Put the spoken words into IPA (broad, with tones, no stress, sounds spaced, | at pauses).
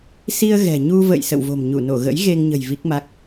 s i˧ ə̯ ɣ ɛ̤˨˩ ɲ u˧ v ə̰˧˨ j s ə̰˧˨ w v o̤˨˩ m ɲ u˧˩ n o˧˩ ɣ ə̰˧˥ j ɣ e˧ ŋ ɲ ə̤˨˩ j v i˦˥ k̚ m a˦˥ k̚